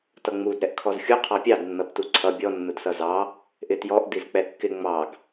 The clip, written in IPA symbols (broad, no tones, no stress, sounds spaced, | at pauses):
t ʌ ŋ͡m u d ɾ ɛ ʔ kʰ ɔ z xʲ u qʰ ɑ pʲ ɑ d nː ʌ b t u ǀʰ ʌ bʲ ɔ nː ʊ d s ʌ z ɑ | ʔ ɪ t j ɔ ʔ d i z k͡p ɛ kː ɪ ŋ͡m ɑ ɡ